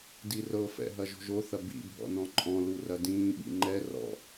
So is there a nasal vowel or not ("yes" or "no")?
yes